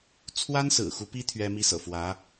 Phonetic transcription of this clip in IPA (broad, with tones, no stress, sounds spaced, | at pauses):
t͡sʰ w a˥ n s ɹ̩˨˩ x u˧˥ p i˥ t̪ʰ ɥ ɛ˥ m i˥ s ɤ̰˨˩ f w ä˧˥